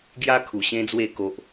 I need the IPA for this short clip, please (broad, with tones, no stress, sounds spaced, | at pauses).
ɡ j a˦ kʰ u˨˩ ɕ ẽ˦ d͡z w e˥˧ k o˦ ʔ